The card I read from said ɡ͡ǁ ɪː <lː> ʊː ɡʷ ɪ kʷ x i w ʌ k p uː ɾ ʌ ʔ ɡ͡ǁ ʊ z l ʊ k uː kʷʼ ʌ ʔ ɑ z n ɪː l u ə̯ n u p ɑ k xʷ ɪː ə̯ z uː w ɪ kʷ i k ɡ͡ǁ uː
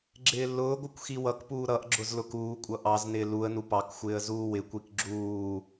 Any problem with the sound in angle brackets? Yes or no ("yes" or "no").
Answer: no